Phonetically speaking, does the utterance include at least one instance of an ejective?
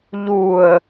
no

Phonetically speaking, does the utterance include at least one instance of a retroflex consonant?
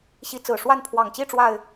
yes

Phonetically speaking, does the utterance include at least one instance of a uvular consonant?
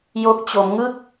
no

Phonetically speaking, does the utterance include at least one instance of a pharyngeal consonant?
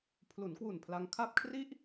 no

